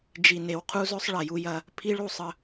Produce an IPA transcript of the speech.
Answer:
d͡ʒ i˨ n e˨ w qʰ u˦ z ɵ˦ sˤ ɭ ɐ˨ j u˦ j ɐ˦ | pʰ i˦ ɭ u˦˨ sˤ ə˦

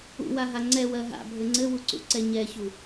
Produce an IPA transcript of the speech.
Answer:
ṵ w a ɦ a ŋ͡ǀ ɛ w ɜ ɦ a̰ bʱ ɘ ŋ͡ǀ ɘ w u ǀ ṵ ǀ ɛ ɲ ɛ ç u

